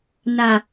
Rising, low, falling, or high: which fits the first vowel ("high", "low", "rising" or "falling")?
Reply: low